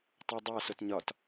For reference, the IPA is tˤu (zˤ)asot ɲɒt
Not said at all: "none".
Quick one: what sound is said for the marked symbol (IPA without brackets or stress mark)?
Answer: dˤ